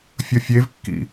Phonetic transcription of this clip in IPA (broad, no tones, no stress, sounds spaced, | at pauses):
fʲ ʌ fʲ e v kː ḭ